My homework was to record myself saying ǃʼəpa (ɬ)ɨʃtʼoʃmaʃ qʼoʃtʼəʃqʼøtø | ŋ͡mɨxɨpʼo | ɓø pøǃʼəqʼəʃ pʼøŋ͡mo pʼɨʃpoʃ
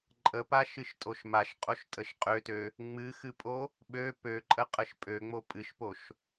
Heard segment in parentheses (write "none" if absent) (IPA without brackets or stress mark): ʃ